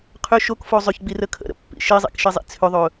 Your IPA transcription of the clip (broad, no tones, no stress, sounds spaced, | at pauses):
qʰ ʏ ʃ o k f o zˤ ʏ ç ɡ͡b i r ə kʰ ə̰ ɾ ə̰ pː ḭ ʃ i zˤ ḭ k ʃ i zˤ ḭ t͡sʰ ʏ ðˤ ɵ